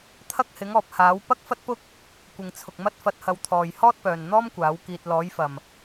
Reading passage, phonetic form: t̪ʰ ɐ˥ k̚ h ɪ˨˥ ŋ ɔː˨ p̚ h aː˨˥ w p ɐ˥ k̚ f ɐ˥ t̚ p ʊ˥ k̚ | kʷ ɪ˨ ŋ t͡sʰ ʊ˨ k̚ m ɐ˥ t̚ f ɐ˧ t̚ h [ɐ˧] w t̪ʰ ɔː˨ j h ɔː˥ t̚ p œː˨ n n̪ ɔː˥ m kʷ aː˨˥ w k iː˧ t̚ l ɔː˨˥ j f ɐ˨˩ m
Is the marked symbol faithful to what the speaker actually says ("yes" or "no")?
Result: yes